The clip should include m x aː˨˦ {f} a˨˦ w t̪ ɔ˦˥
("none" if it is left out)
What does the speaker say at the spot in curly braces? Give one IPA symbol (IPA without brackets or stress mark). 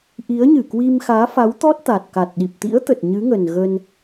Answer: f